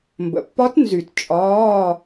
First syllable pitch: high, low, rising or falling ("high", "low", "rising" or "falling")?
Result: low